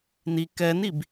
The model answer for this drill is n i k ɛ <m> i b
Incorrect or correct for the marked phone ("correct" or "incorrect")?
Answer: incorrect